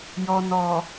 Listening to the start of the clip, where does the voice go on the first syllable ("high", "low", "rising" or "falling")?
low